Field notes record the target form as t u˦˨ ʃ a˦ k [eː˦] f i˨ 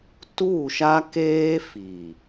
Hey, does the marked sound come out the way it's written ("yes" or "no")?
yes